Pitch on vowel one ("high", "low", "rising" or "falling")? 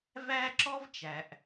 high